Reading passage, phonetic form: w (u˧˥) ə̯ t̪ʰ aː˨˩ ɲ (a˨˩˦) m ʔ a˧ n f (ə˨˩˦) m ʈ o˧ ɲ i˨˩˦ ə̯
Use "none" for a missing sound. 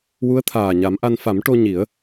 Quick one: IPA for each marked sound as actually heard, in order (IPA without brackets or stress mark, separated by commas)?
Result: u˧˥, a˨˩˦, a˨˩˦